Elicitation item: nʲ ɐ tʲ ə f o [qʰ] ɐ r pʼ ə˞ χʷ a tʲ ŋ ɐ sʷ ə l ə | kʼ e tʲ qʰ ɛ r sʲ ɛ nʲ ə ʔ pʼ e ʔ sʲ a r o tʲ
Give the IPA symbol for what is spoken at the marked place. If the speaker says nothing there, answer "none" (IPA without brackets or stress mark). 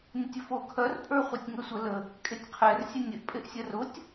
kʰ